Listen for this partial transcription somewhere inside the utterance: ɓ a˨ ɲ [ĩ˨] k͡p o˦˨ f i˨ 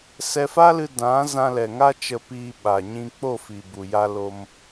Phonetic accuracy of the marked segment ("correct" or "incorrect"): incorrect